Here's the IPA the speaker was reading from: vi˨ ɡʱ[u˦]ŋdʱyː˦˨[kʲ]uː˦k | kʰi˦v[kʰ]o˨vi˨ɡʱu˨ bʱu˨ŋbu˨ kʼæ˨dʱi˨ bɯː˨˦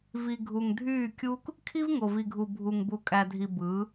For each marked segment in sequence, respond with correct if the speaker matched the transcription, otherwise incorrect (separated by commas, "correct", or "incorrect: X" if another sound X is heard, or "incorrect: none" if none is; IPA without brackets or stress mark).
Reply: incorrect: u˨, correct, incorrect: ŋ